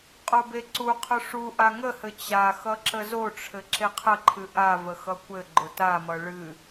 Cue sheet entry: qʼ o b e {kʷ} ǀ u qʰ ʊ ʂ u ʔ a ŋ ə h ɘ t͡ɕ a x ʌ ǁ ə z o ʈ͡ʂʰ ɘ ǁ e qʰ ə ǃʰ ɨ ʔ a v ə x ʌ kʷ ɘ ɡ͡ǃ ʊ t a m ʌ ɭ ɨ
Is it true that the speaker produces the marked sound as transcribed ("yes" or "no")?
no